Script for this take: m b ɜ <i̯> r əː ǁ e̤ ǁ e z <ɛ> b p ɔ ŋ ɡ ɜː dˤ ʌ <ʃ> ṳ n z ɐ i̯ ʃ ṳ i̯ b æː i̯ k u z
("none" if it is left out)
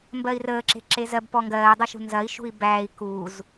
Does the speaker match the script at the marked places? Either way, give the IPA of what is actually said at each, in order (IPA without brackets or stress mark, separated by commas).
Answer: i̯, ɜ, ʃ